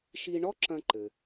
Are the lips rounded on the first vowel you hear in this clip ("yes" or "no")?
no